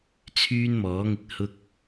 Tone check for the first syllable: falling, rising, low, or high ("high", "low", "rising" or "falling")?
high